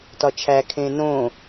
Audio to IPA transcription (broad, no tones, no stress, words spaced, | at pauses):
tɒt͡ʃʰækʰẽː nõ